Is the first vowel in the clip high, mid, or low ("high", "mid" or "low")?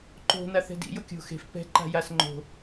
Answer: mid